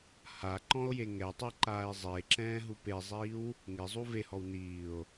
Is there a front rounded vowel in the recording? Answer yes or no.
no